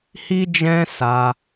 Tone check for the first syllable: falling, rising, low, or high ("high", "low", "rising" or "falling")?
high